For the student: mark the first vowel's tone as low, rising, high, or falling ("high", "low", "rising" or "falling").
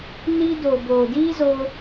high